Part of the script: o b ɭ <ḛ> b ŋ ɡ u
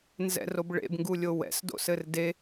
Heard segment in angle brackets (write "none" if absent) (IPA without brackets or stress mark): ḛ